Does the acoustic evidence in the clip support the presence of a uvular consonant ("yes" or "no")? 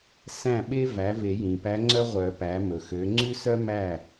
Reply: yes